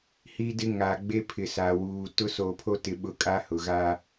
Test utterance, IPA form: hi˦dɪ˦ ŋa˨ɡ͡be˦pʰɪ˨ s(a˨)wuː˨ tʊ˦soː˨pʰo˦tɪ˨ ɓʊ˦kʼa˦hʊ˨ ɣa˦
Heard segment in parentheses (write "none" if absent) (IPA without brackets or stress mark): a˨